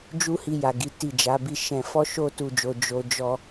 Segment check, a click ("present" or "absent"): absent